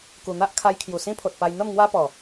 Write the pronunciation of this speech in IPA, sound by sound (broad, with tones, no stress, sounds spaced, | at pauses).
k u˨˩ n̪ a˦ ʔ kʰ a˧ j kʰ j u˨˩ s ĩ˦ pʰ o˨ t̚ p a˧ j n̪ ə˥˧ m ŋ w a˦ p ɔ˨˩